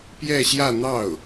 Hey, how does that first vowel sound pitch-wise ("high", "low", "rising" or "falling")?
falling